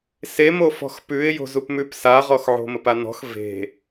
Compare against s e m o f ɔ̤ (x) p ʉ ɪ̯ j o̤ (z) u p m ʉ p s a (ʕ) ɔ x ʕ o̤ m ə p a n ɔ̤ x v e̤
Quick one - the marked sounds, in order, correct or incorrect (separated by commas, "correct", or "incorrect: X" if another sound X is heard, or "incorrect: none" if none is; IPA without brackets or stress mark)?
correct, correct, incorrect: ʁ